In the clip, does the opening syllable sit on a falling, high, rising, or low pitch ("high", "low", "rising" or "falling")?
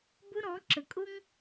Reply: high